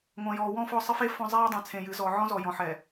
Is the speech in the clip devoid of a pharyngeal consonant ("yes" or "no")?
no